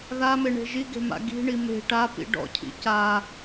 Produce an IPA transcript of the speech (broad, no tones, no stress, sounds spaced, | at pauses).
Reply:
ð a m e ɳ e̤ ʒ i ɡ e̤ m a̰ ɡ i̤ ɳ i m e̤ ʈ a p ḭ ɖ ɔ̰ cʰ ḭ c a